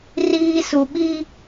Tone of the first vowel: low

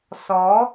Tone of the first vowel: rising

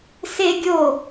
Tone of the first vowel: high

